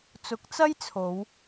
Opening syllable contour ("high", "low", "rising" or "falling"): rising